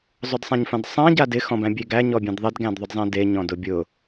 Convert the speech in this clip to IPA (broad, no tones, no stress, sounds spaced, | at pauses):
zˤ ʊ d sˤ ã ɲ f ã d sˤ ã ɟ a d ɪ x ɔ̃ b æ̃ bʲ e ɡ æ ɲ ɔ bʲ ẽ d ðˤ ɪ d ɡ æ̃ d ðˤ ʊ d zˤ ẽ d e ɲ ɔ̃ d ʊ bʲ ʊ